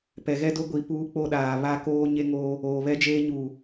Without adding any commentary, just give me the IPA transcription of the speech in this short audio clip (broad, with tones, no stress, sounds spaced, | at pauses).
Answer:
p ɛ˨ ɣ ɛ˦ d o˦ ɡʷ i˨ p uː˦ k͡p o˦ ɗ aː˨ β a˦ k oː˦ ɲ e˦ ŋ oː˦ | oː˨ β ɛ˦ d͡ʒ eː˦ ɲ uː˨